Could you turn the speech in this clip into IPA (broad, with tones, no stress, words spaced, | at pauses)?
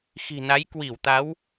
xi̤˨˩na˨˦j kwi˧˩wt̪a˨˦w